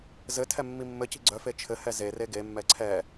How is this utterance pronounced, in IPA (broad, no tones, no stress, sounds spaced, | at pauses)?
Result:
z ɘ tʰ ɛ mː i mː ɘ c i̤ ɡ͡ǀ œ f e t͡ʃʰ ɘ h ɛ z e r e ɡ e mː ɛ ǀʰ ɛ